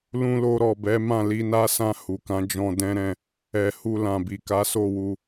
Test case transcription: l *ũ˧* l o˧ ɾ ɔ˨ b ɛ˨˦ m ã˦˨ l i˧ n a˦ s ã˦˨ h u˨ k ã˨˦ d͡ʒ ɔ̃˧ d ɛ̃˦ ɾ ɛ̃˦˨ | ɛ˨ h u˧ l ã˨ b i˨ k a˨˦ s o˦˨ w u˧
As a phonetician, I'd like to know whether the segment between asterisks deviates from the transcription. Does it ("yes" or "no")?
no